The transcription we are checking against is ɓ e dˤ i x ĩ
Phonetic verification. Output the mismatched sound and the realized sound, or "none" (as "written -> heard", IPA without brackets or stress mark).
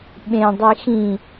e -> ẽ